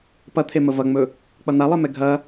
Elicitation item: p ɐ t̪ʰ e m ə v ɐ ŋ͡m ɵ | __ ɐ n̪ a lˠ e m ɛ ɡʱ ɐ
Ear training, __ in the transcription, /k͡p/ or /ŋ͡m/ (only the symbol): k͡p